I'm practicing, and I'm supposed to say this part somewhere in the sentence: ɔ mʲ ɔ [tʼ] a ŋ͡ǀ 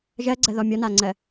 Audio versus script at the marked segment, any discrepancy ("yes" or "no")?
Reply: yes